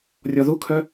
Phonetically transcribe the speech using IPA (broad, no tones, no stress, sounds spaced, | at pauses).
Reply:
rʲ ɔ ð u kʰ œ